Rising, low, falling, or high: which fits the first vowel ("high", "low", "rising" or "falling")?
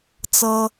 high